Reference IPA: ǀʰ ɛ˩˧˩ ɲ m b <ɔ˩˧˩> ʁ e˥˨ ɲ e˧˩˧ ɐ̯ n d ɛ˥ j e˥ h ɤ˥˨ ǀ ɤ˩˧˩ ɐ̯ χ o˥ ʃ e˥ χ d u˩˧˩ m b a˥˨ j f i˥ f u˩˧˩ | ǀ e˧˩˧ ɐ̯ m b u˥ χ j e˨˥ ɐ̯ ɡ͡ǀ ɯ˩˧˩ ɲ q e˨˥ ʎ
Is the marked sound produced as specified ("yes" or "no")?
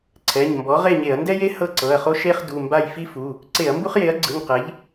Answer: no